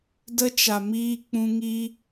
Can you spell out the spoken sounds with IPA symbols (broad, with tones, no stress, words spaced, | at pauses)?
də˧t͡ʃa˨miː˧ k͡pũ˧ŋi˦